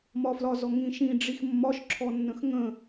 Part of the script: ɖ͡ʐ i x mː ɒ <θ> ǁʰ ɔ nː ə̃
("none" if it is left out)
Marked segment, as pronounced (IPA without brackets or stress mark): ʃ